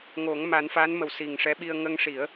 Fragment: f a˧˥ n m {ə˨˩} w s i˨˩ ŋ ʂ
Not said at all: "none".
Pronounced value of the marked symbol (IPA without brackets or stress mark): ə˨˩